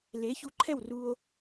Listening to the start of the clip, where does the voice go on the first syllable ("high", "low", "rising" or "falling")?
rising